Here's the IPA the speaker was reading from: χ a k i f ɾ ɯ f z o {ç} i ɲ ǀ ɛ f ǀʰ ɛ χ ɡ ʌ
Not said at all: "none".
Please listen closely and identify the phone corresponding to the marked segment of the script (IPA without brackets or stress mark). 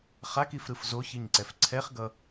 ç